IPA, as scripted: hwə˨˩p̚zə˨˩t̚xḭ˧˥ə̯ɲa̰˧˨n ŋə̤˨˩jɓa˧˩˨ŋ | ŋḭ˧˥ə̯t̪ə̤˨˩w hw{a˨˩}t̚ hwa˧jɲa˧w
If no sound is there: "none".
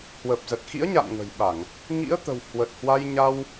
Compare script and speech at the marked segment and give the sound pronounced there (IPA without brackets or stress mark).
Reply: ə˨˩